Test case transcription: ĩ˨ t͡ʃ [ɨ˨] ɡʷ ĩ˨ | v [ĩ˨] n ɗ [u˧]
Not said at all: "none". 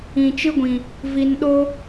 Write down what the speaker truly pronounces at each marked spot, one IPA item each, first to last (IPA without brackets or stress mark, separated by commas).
ɨ˦, i˨, o˧